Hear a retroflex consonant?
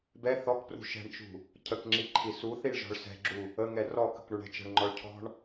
yes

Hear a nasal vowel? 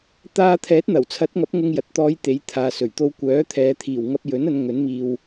no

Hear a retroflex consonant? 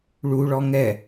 yes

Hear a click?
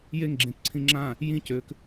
yes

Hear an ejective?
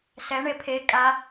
yes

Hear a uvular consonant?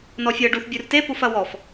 no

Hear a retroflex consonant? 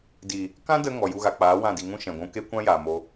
no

